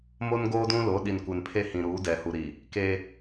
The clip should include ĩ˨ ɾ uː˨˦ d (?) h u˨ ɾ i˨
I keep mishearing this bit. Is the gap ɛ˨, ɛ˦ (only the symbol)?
ɛ˨